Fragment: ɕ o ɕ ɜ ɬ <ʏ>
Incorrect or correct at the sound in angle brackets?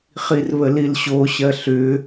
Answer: correct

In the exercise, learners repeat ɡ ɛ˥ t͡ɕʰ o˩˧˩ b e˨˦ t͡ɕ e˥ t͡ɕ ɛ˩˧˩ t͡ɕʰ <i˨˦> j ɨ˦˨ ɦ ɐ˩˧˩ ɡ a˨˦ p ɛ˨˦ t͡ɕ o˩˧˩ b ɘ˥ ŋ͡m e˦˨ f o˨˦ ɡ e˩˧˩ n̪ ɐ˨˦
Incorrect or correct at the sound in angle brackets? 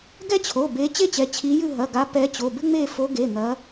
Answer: correct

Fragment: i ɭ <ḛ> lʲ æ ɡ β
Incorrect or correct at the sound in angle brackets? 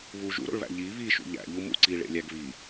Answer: correct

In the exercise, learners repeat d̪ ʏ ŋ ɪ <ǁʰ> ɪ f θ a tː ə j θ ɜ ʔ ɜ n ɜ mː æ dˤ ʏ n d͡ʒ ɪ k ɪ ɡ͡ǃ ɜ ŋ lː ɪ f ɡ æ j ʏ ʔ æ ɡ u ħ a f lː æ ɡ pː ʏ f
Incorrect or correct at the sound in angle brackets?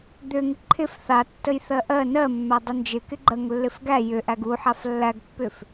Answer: incorrect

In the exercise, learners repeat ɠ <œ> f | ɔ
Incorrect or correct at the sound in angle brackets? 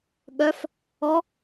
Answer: correct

